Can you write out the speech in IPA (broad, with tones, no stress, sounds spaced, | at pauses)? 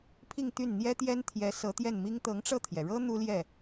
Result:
pʰ i˥˧ ŋ t̪ y˥˩ n n̪ j ɛ˥ t̪ j ɛ˥ n t̪ʰ j ɛ˧˥ s ɤ˧˥ t̪ j ɛ˥˩ n m i˥ ŋ t̪ ɤ˧˥ ŋ ʈ͡ʂ ɤ˥˩ t̪ʰ j ɛ˩ ɻ ɤ˥ n̪ u˥ l j ɛ˥˩